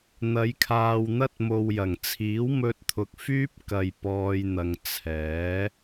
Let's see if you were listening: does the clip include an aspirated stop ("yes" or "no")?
yes